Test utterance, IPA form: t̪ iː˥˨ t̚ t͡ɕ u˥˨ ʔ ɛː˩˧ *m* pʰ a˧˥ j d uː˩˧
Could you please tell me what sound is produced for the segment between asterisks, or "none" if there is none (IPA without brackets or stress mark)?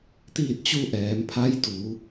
m